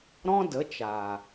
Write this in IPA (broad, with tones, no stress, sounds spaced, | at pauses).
ɾ ɔ̃˦ d ə˨˦ t͡ʃ aː˨